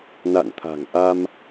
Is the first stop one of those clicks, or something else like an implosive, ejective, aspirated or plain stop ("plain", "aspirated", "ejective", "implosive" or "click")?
aspirated